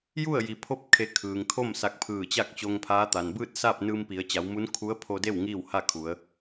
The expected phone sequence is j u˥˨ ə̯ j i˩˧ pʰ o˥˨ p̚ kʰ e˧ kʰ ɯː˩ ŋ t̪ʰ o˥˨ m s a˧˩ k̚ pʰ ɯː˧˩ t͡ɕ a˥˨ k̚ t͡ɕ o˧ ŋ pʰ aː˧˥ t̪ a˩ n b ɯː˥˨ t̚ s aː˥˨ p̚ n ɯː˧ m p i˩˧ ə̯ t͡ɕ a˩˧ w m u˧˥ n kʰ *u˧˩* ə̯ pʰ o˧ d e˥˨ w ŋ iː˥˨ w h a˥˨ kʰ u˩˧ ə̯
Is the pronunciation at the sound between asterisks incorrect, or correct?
incorrect